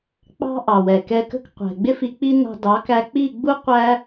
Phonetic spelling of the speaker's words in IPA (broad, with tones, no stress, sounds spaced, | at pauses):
k͡p ɑ̤˦ ʔ ɑ˨ w ɛ˨ k ɛ˧ k ə̤˦ k qʷ ɛ̤˨ ɡ͡b ɪ˦ f i˧ k͡p i˦ n ɑ̤˧ d ɑ˨˦ k æ˧ k͡p i˦˨ ɡ͡b u˦ qʷ æ˦